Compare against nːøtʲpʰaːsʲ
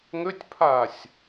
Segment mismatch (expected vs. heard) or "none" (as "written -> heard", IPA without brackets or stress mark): nː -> ŋ